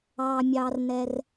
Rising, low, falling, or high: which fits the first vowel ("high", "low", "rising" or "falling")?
low